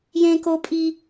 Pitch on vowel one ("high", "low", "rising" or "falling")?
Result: high